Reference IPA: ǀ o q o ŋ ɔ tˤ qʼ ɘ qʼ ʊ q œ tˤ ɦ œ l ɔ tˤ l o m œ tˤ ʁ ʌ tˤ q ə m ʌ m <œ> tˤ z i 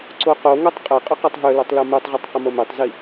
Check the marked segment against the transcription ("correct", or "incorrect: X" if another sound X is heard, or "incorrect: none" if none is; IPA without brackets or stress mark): correct